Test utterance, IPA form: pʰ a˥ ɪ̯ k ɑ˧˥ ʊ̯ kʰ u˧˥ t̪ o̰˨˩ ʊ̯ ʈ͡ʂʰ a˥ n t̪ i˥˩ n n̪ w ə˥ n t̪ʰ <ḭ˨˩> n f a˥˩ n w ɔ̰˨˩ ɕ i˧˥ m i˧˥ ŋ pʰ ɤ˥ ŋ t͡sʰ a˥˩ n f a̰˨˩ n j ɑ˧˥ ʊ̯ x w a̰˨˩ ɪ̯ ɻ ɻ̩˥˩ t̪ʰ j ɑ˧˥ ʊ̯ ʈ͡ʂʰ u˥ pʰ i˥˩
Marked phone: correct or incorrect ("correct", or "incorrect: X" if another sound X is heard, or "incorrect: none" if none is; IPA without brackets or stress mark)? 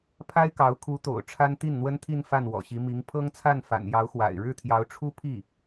incorrect: i˥˧